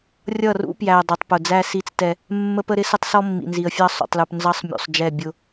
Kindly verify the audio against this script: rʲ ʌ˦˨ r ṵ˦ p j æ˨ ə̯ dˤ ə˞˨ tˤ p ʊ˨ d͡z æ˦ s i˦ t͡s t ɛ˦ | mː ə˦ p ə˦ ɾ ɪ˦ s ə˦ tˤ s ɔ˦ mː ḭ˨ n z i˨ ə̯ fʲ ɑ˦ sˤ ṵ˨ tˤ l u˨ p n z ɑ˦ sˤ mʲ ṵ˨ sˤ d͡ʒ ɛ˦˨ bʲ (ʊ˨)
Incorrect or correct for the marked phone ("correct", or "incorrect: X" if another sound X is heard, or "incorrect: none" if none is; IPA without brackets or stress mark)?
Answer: incorrect: ʊ˦